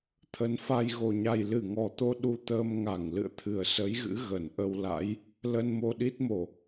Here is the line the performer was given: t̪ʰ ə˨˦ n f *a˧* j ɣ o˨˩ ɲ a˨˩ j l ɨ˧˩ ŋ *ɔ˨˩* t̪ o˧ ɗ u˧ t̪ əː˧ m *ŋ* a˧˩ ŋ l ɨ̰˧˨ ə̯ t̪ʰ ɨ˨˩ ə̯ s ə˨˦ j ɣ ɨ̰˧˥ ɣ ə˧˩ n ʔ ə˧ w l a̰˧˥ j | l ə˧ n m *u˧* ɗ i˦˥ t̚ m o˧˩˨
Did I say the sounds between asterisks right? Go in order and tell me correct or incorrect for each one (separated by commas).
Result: correct, correct, correct, incorrect